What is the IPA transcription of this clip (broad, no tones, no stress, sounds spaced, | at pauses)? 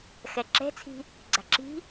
x ɛ ǁ ɛ̤ t͡sʰ i̤ | ɡ͡ǀ a̤ ǁ i̤